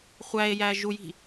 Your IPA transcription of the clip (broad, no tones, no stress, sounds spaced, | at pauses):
χʷ æ e̯ j æ ʒ u j i̤